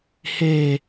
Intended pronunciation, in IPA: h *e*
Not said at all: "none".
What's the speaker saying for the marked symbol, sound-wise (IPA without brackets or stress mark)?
e